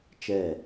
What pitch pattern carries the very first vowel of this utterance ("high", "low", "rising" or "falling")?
falling